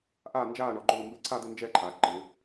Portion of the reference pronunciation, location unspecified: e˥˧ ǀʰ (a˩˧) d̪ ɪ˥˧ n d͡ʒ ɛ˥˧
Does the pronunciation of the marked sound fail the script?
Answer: yes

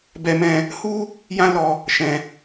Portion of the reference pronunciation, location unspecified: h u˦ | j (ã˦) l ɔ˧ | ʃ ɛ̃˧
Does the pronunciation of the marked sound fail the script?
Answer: no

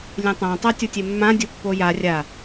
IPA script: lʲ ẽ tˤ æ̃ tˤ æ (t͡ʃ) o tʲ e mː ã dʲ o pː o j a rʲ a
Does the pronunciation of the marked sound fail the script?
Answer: yes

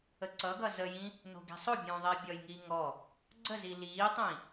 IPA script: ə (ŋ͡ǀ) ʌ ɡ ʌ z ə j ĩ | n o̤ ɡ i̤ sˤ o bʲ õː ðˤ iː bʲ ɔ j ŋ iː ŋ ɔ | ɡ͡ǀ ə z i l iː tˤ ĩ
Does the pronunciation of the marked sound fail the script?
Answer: yes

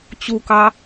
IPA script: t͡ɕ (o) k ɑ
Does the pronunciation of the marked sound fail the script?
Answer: yes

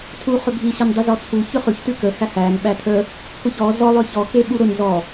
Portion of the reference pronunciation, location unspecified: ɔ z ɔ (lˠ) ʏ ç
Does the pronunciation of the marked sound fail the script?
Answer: no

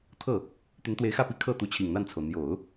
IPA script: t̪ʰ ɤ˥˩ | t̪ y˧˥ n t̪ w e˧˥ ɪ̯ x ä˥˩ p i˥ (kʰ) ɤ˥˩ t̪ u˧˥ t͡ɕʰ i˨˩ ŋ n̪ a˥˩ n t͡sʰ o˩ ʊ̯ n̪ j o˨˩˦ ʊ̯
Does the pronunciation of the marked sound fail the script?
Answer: no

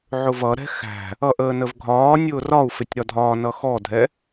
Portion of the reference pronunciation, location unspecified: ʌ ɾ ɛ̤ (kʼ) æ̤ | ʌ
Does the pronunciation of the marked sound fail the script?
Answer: yes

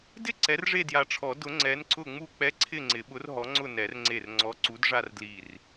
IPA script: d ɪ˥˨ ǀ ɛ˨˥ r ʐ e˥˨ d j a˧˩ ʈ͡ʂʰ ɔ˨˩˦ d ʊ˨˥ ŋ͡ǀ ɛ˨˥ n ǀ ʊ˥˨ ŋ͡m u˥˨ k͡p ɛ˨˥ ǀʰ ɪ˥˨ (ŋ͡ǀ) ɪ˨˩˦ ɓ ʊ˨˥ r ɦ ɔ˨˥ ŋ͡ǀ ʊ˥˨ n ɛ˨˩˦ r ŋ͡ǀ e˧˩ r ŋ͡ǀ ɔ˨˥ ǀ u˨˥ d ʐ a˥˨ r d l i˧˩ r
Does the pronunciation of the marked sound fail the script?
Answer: no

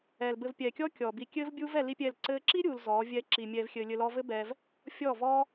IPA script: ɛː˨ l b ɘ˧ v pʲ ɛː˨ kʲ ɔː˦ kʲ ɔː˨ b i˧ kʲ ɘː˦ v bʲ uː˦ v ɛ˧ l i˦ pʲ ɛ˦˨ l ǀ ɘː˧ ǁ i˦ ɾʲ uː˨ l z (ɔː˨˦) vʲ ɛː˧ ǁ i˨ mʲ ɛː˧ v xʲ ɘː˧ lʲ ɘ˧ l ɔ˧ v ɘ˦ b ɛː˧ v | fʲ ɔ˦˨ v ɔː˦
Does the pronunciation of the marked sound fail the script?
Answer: no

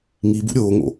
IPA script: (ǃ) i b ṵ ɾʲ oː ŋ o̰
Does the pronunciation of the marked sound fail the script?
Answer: yes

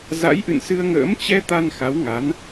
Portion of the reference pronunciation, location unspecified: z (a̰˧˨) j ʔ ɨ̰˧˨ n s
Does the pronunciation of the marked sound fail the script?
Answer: yes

